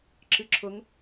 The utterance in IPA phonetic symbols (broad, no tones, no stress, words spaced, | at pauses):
ǁɨǁʰʊŋ